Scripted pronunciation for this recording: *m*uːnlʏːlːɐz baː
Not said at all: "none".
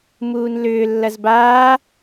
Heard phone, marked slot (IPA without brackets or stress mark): m